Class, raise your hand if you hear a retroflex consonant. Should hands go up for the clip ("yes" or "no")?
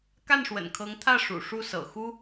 yes